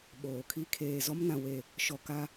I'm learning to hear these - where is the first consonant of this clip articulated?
lips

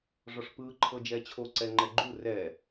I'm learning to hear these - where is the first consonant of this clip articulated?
retroflex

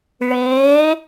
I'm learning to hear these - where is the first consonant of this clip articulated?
retroflex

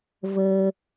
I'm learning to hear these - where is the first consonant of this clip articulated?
lips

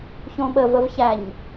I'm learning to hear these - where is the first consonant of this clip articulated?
palate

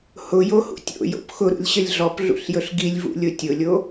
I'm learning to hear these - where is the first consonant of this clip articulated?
throat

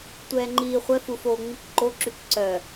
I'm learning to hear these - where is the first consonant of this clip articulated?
tongue tip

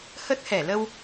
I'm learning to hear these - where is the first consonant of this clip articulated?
throat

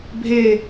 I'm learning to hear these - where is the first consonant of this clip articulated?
lips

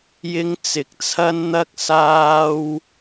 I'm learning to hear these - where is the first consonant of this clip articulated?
palate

